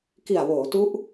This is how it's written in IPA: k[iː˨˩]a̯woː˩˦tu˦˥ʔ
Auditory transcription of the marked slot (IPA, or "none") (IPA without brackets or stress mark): i˨˩